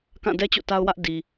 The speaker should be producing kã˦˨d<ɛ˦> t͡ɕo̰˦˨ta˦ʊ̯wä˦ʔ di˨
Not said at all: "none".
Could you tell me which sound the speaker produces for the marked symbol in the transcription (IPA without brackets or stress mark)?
ɛ˦